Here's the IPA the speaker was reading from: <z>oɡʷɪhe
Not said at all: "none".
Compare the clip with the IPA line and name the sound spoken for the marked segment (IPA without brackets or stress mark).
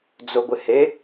d͡z